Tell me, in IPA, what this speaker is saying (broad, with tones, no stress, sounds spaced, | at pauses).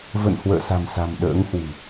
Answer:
v ə̰˧˨ n h w ə̰ː˧˨ s a̤˨˩ m s a̤˨˩ m ɗ ə̰ː˧˥ ŋ h w ɨ̤˨˩